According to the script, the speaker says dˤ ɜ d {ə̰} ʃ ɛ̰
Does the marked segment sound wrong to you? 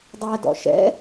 yes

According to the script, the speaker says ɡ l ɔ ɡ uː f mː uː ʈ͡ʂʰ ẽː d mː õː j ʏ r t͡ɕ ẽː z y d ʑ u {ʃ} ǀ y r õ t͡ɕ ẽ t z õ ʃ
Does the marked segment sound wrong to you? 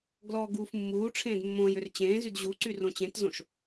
yes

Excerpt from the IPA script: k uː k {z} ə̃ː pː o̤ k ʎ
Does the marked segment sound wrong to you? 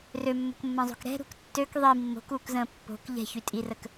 no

